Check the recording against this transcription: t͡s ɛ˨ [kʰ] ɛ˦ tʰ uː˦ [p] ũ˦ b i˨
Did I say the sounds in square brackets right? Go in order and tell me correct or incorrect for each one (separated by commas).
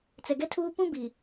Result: incorrect, correct